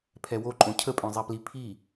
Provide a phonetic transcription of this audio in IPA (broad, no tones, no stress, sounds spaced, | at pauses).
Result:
pʰ ɛ w o ǃʼ õ cʰ ə pʼ œ̃ zˤ ɛ p l i pʰ i